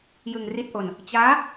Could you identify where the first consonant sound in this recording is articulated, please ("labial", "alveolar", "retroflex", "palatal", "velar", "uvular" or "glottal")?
palatal